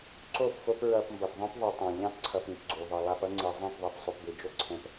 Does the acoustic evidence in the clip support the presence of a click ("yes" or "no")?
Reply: yes